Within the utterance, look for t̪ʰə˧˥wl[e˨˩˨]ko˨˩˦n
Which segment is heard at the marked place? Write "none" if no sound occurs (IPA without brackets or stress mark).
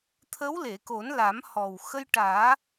e˨˩˨